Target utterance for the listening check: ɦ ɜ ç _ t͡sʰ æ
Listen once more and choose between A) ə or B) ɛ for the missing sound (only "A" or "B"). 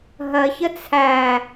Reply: A